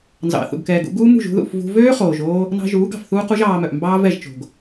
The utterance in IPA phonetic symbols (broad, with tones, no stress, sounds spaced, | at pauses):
n z ɑ̰˨ θ ṵ˨ ɡ k ɛː˨ ɡ ṵ˧ ɡ uː˦ m ṳ˦˨ ʒ ṳ˧ ð ṵ˦˨ f v ṳ˧ v øː˦ χ oː˨ ʒ oː˧ | n ɑ̤˧ ʒ uː˨˦ ɡ ɑ̤˨ f θ uː˦ q u˦ ʒ ɑː˧ m œ˨ ʔ m b ɑː˦ v ɛ˦˨ ʒ t͡ʃ o̤˨ ɡ